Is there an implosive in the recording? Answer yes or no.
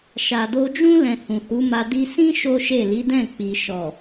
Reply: no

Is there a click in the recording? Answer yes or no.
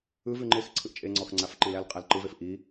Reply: yes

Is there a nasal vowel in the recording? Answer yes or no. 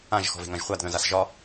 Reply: yes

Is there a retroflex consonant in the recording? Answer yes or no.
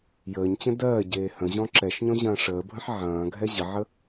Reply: yes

